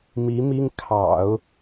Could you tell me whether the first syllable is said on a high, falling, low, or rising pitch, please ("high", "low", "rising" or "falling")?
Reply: rising